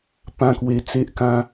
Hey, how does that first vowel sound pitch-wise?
high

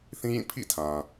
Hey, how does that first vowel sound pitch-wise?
high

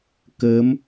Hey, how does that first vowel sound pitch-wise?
rising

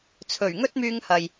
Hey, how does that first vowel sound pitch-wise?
low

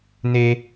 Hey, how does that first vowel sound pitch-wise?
high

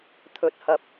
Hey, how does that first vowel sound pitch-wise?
rising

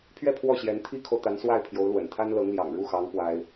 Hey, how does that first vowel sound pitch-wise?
falling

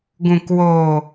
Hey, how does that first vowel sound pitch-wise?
low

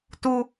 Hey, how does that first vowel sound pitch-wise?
high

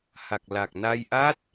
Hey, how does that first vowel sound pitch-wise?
low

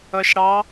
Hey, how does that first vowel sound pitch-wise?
low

